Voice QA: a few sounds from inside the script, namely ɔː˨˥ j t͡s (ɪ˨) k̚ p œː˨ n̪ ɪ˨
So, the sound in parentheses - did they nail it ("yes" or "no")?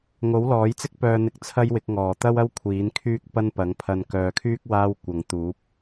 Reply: no